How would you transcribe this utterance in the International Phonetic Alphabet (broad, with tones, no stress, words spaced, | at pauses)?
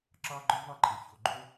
ǁɑ˥ɡ͡ǃɔ˥vɑ˥ǃʼe˩ ço˩ ɡ͡ǃo˥